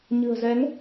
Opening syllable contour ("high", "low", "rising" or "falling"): low